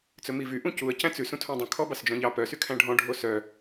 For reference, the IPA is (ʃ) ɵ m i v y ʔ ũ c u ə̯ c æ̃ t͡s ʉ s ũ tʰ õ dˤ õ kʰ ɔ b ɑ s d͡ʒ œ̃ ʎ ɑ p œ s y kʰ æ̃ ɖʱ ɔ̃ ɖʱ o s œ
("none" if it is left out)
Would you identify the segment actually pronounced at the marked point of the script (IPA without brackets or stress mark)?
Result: t͡s